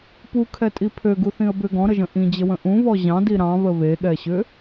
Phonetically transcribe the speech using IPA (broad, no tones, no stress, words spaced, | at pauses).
pukʰɛtʼi pʰøɡuθĩə̯ bʏ ɡɔ̃ɾəʒə̃ ʔĩd͡ʑəwə̃ ʔũβɔ ʑɑ̃di ɾɑ̃βə βeɠɛɕʏ